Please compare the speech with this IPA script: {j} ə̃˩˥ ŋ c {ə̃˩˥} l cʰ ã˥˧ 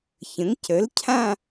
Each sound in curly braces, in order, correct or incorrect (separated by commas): incorrect, incorrect